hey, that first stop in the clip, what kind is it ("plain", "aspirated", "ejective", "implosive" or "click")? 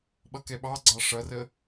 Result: implosive